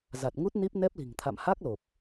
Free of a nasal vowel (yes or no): yes